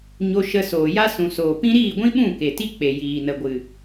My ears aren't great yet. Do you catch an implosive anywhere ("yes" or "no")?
yes